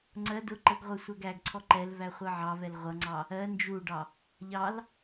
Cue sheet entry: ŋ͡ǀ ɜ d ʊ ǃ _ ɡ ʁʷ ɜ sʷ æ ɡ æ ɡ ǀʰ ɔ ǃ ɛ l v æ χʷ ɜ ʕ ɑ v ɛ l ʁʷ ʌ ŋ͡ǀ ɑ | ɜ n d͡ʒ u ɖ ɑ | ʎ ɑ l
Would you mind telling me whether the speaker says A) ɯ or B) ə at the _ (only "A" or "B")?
B